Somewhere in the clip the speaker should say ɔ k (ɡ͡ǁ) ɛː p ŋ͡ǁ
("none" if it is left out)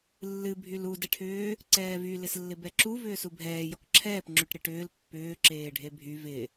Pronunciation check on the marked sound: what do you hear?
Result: ǁʰ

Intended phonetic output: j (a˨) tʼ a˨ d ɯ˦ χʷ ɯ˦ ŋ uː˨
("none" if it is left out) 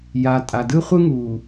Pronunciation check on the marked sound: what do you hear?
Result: a˨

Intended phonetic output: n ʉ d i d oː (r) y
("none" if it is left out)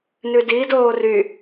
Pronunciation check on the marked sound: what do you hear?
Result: r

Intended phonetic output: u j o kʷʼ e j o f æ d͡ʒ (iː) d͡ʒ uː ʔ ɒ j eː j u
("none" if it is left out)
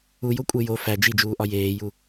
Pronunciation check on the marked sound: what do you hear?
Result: i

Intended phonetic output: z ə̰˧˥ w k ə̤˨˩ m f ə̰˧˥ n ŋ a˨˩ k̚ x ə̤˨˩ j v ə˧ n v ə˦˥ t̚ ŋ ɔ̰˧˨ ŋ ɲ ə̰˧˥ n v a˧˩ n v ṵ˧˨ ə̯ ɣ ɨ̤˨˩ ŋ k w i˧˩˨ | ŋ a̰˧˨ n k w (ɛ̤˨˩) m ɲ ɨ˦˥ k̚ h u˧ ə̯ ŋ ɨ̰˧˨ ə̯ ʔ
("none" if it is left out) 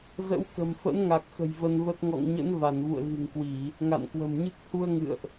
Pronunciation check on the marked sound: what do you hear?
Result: ə̤˨˩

